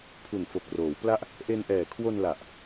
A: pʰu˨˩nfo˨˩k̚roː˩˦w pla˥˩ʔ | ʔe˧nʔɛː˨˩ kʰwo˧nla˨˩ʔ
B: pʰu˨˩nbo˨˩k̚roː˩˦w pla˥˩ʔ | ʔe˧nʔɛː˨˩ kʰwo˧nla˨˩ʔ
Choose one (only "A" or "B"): A